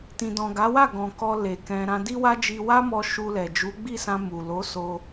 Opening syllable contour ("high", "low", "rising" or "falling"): low